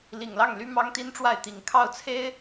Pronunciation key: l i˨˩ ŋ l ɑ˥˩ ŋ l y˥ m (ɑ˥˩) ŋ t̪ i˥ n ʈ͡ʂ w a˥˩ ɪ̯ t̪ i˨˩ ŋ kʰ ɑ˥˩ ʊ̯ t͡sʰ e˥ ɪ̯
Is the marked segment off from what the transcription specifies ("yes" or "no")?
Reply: yes